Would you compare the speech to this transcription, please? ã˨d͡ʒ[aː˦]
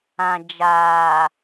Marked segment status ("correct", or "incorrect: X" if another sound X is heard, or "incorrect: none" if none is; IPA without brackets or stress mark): incorrect: aː˨